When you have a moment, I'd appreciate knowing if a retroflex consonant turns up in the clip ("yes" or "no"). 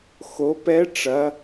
yes